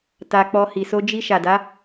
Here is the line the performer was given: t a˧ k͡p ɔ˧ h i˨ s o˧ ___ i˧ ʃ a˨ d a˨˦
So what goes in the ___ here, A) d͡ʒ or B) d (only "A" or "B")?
A